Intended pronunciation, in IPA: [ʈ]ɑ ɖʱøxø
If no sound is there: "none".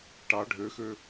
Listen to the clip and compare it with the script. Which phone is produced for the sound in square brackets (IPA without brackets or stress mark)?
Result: ʈ